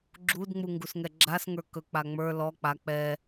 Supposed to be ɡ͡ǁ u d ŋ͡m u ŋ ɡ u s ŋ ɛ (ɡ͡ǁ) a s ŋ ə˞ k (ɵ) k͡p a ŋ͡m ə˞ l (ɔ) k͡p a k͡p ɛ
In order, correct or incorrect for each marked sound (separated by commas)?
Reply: correct, correct, correct